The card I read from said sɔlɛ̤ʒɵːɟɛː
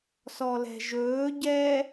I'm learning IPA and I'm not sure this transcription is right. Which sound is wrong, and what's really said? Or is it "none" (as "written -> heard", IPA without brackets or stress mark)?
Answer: none